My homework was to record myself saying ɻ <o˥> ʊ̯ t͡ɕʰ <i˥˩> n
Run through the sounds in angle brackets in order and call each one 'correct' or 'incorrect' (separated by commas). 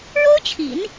correct, incorrect